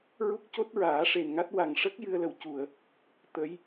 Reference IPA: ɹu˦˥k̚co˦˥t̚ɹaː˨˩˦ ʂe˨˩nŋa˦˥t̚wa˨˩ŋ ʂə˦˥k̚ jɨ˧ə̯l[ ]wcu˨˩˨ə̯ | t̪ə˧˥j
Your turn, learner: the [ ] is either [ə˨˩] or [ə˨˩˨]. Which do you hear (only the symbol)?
ə˨˩